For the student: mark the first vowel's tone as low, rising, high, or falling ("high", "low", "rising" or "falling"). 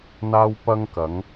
high